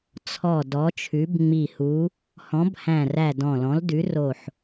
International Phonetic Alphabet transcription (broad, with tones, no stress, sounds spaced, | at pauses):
t͡sʰ ɔ˧˩ d ɔ˨˥ t͡ʃʰ ʉ˨˥ b ŋ͡m i˧˩ h u˨˥ | h ɔ̃˨˥ b h æ̃˧˩ r æ˧˩ d ɔ̃˧˩ l ɔ̃˨˥ l d ʉ˨˥ r o˧˩ ħ